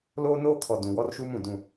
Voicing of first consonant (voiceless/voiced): voiced